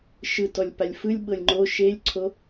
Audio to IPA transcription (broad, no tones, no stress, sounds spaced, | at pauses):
ʃ ɯ t ɔ lʲ p a lʲ f ɯ lʲ ɓ ɤ lʲ ŋ͡ǃ o ʃ e lʲ ǀʰ o